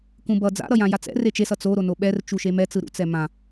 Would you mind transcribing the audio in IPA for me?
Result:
k ũ b ʌ d͡z a̰ ɾ ʌ j ã j a t͡s ɛ̰ r e t͡ʃ e s ʌ t͡s o ɾ o n o ɓ ɛ r t͡ʃ u ʃ e m ɛ t͡s ɯ ɾ ṵ t͡s ɛ m ã

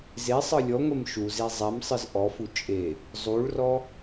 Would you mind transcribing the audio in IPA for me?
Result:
z e sˤ ɯ lʲ ɔ ŋʷ e m ʃ u z e zˤ ɛ m sˤ ɯ z ʔ ɔ f u t͡ʃʼ e | zˤ u ɭ r ɔ

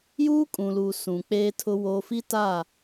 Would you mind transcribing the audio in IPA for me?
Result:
j uː˦ kʼ ũ˨ l u˨ s ũ˨ k͡p eː˦ tʰ ʊ˦ w oː˦ f i˦ t a˦˨

